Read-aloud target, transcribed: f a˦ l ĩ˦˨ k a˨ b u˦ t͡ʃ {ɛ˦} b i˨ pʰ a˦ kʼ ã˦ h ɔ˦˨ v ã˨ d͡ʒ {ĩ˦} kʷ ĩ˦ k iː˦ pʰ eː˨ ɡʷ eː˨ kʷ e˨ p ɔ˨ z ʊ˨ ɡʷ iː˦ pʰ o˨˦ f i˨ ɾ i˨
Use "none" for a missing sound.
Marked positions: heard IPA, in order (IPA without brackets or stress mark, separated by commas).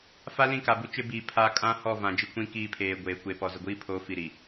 ɪ˦, i˦